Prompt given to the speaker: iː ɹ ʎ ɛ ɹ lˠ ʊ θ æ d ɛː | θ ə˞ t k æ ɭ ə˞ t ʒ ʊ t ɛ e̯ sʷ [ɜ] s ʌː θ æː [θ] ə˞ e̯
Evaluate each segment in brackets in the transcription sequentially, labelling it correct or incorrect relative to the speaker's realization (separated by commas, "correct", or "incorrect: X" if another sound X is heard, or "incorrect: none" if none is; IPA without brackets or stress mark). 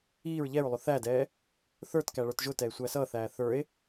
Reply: incorrect: æ, correct